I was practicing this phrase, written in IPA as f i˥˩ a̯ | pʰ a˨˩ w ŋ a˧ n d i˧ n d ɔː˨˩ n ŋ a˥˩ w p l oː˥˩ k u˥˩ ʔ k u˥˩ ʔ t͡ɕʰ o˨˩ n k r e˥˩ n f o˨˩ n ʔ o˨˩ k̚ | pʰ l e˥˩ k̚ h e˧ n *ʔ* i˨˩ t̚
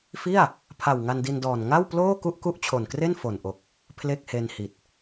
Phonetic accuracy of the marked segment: incorrect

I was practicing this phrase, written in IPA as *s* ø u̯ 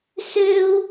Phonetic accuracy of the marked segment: correct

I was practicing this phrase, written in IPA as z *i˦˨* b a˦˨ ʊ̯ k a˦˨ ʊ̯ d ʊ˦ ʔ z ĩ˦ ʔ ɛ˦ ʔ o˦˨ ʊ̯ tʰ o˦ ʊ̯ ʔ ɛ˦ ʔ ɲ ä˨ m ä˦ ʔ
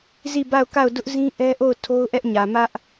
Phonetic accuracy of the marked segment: correct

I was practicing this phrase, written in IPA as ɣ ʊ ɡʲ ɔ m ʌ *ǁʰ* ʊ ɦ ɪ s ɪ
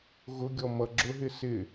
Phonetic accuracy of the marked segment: incorrect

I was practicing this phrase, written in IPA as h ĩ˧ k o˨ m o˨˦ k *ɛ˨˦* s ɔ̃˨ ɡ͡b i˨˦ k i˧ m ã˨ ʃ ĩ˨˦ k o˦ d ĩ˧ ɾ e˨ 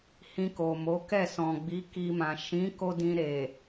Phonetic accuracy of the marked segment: incorrect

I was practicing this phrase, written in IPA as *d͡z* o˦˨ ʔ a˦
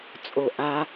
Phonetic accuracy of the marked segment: incorrect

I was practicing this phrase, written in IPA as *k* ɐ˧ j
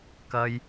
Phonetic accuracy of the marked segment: correct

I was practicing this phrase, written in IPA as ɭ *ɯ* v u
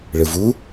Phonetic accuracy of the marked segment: correct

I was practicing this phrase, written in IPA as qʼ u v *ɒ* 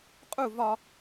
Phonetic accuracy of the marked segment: correct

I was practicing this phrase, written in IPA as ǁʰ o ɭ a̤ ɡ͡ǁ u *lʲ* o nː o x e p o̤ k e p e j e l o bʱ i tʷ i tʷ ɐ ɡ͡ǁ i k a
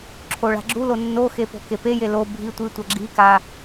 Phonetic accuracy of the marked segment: incorrect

